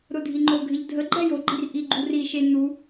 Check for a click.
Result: present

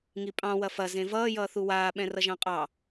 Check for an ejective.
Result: present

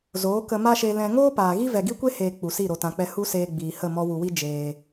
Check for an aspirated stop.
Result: absent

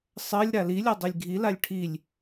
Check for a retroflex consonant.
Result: present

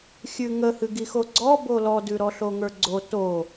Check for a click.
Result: present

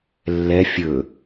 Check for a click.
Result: absent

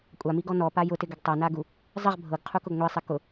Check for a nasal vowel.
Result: absent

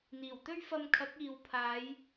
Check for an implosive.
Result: absent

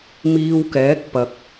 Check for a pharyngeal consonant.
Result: absent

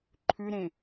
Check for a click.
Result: present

